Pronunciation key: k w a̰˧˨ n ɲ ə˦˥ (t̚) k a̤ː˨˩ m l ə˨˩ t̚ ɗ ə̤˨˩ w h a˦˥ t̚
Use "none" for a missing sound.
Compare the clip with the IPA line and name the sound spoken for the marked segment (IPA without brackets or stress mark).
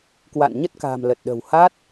t̚